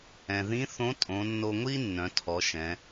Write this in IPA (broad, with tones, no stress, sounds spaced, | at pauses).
ɛ̃˩ ð ĩ˧˥ θ õ˧˥ tʼ õ˩˧ nː o˧ ŋʷ i˥ nː œ̃˩˧ tʰ ɔ˩˧ ʃ ɛ̃˩˧